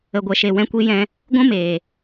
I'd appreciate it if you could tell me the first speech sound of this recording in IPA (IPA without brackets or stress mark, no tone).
ə